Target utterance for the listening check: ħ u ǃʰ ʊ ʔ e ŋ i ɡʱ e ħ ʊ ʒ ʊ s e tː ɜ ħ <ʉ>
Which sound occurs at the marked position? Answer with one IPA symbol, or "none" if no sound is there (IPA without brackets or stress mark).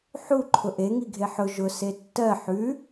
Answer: ʉ